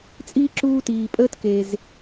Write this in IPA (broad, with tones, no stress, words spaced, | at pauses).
t͡sʼiː˥ǁuː˥tiː˧ pʼəː˥tke˧z